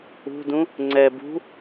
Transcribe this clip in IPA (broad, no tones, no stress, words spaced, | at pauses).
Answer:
ṳdũ | ŋ͡ǀɛ bṳ